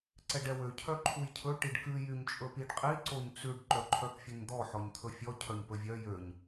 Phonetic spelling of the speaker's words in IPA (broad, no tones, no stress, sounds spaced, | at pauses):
ǀ ɛ ɖ ɛ w ø cʰ œ ǃʰ u j cʰ ɵ ʈ i ɖ k ʉ j y ɲ t͡ʃʼ ɵ p i ɖ qʼ i ǀ o ɲ t͡s ʉ ɖ ǃ œ ǃʰ œ p fʲ ø ɲ d̪ ɔ ħ ɔ ɲ t̪ʰ ɵ fʲ ɔ cʰ œ ɲ p ɵ vʲ œ j ø ɲ